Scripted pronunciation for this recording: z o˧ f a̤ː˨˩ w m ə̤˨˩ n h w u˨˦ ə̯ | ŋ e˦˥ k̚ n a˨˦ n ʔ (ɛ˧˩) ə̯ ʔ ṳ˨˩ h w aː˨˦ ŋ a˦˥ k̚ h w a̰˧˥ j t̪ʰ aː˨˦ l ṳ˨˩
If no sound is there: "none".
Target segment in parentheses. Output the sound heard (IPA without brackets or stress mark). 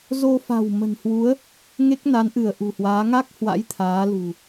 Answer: ɨ˧˩